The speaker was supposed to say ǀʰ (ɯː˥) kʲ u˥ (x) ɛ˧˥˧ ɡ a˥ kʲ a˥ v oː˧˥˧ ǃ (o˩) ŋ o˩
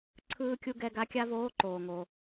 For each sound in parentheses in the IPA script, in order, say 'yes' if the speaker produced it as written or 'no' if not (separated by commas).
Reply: yes, no, no